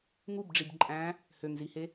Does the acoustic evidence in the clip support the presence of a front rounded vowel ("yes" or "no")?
yes